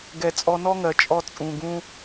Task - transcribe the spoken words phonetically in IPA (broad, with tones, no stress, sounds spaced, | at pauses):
ɡ ɛ˨ t͡sʼ ɔ˧ n ɔ˦ ŋ ɜ˨ t͡ʃʼ ɔ˧ t͡sʼ ũ˨ ɡ ũ˧